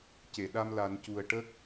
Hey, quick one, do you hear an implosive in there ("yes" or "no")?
yes